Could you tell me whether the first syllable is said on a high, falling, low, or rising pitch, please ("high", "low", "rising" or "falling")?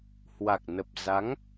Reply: low